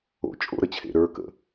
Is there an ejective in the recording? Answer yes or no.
yes